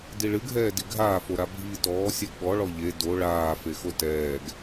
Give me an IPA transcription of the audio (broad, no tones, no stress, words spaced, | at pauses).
diɭɨɡʱɛːdi ɡʱaːfoɾa bʱiːtɔː sʲɛɡɓɔ ɭɔʎe do ɭaː fexotɛːɡ